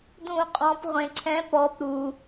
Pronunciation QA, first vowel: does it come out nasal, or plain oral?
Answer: nasal